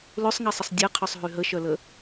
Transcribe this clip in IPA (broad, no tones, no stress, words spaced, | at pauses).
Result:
løsˤŋɛsˤəsˤ dʲɛqʰœsˤ ɦyɦəʃœlə